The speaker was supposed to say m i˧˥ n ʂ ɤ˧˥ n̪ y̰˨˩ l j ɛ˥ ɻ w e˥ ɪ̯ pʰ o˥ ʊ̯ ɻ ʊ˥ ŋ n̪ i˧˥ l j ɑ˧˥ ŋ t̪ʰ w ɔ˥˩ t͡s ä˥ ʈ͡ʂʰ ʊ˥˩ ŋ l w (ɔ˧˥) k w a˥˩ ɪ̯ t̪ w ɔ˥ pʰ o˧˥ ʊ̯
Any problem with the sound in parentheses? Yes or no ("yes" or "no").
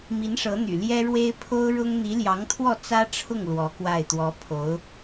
no